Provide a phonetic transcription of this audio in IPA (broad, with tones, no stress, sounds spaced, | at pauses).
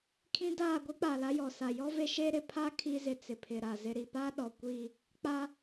kʰ ĩ˦ d aː˦˨ ɡʷ i˦ k͡p a˨ l a˦ j ɔ˨ s a˨ j ɔ˦ v e˦ ʃ e˦ ɾ ɪ˨ pʰ a˦ kʰ i˦ z ɪ˨ t͡s ɪ˨ pʰ ɪ˨ ɾ a˨ z ɪ˨ ɾ i˨ p a˦ ɗ ɔ˨ kʷ i˦˨ | k͡p a˦